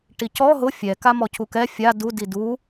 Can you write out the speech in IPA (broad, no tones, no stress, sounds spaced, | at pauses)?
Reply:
ʈ i c ɔ ɦ ʊ fʲ ɛ k a m ɔ cʰ u k ɛ fʲ a d u d i d u